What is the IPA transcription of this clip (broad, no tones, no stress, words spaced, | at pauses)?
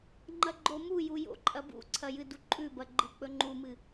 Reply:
ŋ͡ǃɐɡ͡ǃomuju jo̰ǃʼɐbṵǀʰɐ jɨduǃʼʉbɐ ɡ͡ǃɨk͡pɵŋ͡ǃumɨ